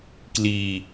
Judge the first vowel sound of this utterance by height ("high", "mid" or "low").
high